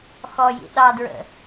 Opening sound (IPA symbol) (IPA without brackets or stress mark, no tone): x